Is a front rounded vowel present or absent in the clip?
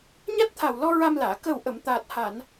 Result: absent